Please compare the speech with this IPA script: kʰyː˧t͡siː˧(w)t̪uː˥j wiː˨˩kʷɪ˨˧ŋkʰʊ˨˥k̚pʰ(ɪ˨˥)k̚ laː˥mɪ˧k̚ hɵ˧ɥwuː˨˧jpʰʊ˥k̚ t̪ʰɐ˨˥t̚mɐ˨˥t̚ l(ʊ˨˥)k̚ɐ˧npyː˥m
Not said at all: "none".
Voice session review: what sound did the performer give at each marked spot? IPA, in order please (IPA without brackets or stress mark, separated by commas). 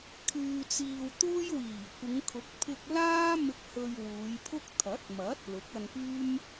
w, ɪ˧, ʊ˨˥